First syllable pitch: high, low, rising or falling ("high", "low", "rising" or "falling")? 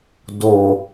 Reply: low